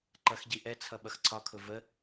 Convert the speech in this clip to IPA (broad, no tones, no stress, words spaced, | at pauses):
ǃʌxɟiʔɛt͡sʰʌ ɓʌxǀʰɒkʰʊ və